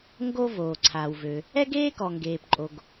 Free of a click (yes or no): no